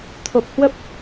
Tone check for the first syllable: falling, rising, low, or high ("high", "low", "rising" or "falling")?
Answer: low